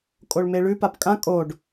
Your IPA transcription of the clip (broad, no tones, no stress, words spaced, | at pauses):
kʼoɭmeɭʉ papkʼã kʼoɖ